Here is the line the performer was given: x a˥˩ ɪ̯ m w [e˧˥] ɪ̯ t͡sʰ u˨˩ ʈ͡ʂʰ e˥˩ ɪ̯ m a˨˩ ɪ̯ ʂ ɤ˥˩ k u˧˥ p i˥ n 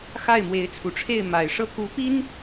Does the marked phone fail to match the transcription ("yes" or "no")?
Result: no